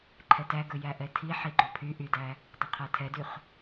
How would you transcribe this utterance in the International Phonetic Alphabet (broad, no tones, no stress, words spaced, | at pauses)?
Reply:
ǃʰɛtæɡɵ jæʔɛtʰi ħiɡ͡ǃopʰy ʔydæ | dˤɵqʰætʰɛdyχ